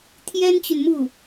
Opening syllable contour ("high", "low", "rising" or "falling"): high